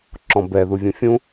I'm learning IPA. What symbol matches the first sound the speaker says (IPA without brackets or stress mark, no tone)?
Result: ǁ